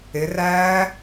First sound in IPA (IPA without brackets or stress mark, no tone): ɪ